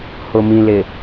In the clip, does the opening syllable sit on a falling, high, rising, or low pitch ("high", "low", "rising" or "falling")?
low